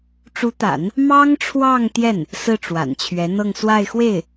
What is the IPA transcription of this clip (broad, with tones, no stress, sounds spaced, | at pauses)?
ʈ͡ʂ u˧˥ t̪ a̰˨˩˦ n | m ɑ˥ ŋ ʈ͡ʂʰ w ɑ˥˧ ŋ t̪ j ɛ˥˩ n | s ɹ̩˥˩ ʈ͡ʂ w a̰˨˩ n t͡ɕʰ ɥ ɛ˧˥ n̪ ɤ˥˧ ŋ s w a˥˧ ɪ̯ x w e˥˩ ɪ̯